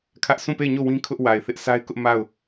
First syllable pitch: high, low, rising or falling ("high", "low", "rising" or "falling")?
high